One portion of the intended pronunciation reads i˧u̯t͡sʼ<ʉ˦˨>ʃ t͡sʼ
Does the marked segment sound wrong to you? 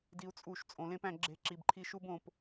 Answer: yes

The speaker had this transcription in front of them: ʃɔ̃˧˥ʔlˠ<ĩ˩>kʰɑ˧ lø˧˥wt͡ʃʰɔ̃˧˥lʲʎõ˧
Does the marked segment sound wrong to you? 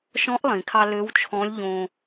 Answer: no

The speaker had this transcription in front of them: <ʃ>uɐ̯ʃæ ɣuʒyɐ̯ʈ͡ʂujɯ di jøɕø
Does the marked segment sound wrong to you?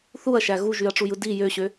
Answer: yes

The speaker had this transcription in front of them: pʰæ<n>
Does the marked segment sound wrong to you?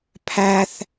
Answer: yes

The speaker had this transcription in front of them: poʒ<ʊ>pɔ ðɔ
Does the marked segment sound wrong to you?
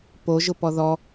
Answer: no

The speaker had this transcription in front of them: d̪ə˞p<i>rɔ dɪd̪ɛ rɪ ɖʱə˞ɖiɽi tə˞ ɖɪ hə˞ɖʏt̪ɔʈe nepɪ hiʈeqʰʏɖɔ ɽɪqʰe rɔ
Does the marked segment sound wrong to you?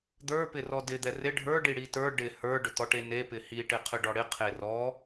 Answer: yes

